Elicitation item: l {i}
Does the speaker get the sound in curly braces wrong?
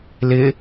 yes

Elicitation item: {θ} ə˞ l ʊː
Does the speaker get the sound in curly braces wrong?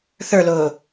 no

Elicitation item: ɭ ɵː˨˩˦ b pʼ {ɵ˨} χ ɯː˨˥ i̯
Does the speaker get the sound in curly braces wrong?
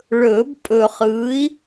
no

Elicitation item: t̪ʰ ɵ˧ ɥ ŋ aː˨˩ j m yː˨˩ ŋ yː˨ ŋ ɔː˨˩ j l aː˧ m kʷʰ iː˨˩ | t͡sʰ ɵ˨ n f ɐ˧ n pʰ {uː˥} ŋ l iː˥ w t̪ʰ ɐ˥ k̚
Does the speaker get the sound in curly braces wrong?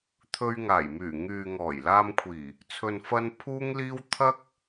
no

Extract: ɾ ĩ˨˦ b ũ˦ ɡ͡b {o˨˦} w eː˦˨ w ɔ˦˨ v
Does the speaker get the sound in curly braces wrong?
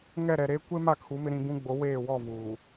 no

